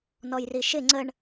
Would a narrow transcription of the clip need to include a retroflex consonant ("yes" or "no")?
yes